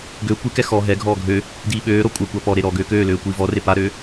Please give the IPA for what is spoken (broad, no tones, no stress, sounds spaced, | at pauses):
ɡ ø kʷ i k ɛ x ɔ ɦ ɛ ɡʱ ɔː ɡʱ ø | d iː ɓ øː ɾ ɔ kʷʼ ɛ kʷ a p ɔ ɾ e ɾ ɔ ɡ øː k øː l øː kʷ iː v ɔ r e p a ɾ øː